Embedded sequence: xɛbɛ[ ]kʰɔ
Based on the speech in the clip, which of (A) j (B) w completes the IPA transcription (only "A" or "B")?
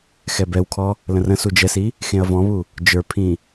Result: B